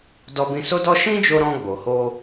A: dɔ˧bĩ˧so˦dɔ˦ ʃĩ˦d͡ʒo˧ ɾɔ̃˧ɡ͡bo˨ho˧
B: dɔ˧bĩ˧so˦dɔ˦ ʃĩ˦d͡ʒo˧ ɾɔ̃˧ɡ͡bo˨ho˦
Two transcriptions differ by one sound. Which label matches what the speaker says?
A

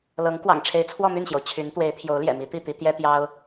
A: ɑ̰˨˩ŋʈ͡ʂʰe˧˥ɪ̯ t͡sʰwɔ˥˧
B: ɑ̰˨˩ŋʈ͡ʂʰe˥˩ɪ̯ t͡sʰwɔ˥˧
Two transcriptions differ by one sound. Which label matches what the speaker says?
A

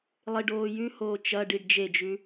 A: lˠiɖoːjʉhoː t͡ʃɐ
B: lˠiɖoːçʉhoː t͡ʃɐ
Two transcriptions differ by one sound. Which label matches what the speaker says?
A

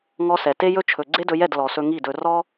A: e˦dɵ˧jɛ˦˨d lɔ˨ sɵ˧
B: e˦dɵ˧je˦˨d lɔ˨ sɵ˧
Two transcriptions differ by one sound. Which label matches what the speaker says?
A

